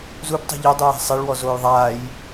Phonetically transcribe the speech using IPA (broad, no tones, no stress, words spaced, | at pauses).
zubtˤṳ ʎɪdˤuja̤ sˤɪɭwɔzoːj ðˤaːj